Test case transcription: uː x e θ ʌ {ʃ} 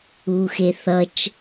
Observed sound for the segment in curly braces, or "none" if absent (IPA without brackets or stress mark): t͡ʃ